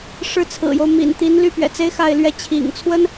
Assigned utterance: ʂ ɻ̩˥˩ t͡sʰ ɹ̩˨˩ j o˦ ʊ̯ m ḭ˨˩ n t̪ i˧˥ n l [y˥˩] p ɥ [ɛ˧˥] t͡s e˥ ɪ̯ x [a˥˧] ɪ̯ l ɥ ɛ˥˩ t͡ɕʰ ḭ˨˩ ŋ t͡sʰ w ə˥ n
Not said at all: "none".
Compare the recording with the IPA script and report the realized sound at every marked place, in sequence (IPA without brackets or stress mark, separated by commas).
y˥˩, ɛ̰˨˩, a˥˧